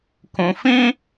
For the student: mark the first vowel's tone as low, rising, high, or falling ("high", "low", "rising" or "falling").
low